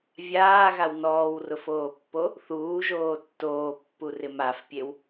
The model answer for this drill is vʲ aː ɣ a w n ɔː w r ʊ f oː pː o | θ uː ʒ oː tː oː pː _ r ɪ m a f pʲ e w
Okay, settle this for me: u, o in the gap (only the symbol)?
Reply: u